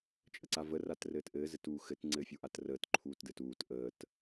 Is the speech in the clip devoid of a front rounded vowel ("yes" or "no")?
yes